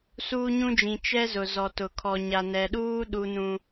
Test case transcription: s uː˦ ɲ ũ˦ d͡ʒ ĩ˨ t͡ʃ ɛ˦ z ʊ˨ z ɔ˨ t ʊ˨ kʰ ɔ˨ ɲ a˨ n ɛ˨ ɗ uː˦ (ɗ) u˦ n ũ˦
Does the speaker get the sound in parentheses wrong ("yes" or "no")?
no